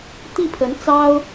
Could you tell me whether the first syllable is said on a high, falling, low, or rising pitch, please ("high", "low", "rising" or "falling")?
falling